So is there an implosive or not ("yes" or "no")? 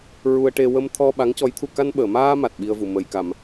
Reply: yes